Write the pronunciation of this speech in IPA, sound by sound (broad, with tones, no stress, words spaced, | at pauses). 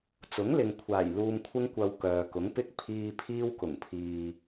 t͡sʊ˨˥ŋlɪ˨ŋkʷʰaː˨˩j luː˨mkʷʰɪ˧ŋkʷɐ˨w kœː˨kʊ˨˥ŋpɪ˥k̚ pʰiː˧ pʰiː˧wkʊ˨˩ŋpʰiː˨